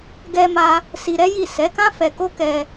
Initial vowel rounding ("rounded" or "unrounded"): unrounded